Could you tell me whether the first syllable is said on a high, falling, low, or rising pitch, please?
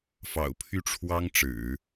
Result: low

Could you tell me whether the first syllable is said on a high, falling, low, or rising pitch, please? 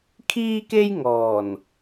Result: high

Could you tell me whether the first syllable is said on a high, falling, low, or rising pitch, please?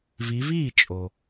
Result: rising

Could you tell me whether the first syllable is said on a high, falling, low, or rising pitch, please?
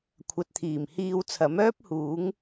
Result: low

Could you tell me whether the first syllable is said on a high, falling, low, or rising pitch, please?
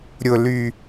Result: low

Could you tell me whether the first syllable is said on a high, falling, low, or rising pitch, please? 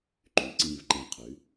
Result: rising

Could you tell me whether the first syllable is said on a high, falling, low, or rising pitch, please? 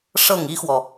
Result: falling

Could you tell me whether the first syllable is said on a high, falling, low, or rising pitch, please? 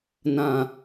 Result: low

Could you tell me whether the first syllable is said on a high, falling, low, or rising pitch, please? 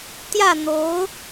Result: falling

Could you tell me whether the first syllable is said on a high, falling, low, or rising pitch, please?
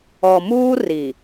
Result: low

